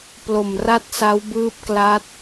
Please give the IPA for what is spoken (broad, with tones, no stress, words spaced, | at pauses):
plo˨˩mra˦˥t̚ sa˦˥wbɯː˦˥p̚kla˦˥t̚